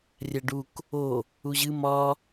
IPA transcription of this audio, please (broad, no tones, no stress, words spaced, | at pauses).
rʲæɖuk | o | uʑɨ mɒ